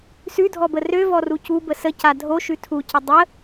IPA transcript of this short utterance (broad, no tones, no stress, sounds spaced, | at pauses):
s ʉ dʱ ɔ b ə r ø v ɔ r u c u b ə s ə c a dʱ o ʃ ʉ tʰ u c ə dˤ ə